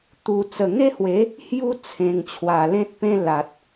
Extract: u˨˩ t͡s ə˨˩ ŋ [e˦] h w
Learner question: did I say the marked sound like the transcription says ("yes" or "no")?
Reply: yes